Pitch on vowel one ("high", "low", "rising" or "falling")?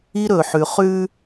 high